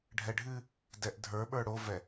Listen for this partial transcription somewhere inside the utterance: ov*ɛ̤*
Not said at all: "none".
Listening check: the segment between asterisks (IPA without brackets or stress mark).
ɛ